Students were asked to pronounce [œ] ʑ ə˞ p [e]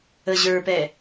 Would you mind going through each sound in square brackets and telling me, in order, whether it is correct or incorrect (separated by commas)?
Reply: incorrect, incorrect